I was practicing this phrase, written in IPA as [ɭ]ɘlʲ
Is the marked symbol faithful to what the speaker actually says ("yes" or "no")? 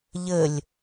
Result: no